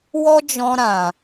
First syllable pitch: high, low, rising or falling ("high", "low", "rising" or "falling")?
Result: high